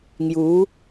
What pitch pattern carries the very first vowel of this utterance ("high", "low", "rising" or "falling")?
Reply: rising